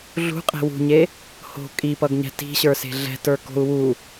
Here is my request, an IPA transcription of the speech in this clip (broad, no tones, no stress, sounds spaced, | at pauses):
ɮ ṳ qʼ e̤ w ṳ ɲ e | h o̤ kʼ i p ʌ ɡ ɲ ɛ̤ t i̤ ɕ ə˞ s e̤ ɮ ɛ̤ t ə˞ k o̤ u̯ w u